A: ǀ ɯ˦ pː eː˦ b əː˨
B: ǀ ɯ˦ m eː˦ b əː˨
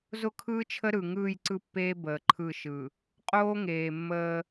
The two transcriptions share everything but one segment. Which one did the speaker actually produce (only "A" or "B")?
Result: A